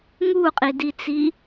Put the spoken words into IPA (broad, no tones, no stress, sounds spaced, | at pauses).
ŋ u qʼ i d i t͡s i